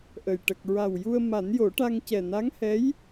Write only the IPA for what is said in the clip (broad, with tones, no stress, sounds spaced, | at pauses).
ʔ ə˨˩ j ʈ ə˨˩ k̚ ɹ a˨˩ w j u˧ ə̯ m a˨˩˦ n j o˨˩˦ ʈ a˧ ŋ c ɛ˨˩ n a˧˥ ŋ h ɛ˧˥ j